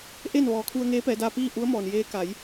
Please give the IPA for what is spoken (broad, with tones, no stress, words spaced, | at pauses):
ʔe˥˨nʋɔː˩˧ kʰu˧ə̯ ŋeː˧˥pɛː˩˧daː˧ piː˥˨ ʔu˧˥ə̯mɔː˩njeː˧˥ ka˩˧j